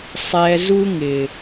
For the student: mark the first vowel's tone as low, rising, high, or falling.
low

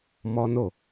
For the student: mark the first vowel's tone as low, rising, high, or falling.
high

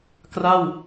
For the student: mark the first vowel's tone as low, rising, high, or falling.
falling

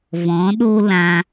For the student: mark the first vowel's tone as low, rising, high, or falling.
rising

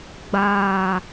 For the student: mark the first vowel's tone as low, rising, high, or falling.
low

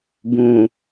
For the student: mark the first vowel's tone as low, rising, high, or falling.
low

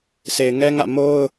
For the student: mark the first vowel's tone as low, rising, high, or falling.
low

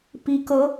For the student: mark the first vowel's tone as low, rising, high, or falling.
rising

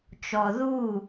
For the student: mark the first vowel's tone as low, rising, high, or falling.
low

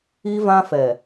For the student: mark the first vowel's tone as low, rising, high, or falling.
high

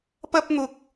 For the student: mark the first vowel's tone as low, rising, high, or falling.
high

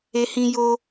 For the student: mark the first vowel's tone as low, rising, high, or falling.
high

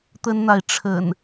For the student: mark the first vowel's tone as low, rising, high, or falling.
high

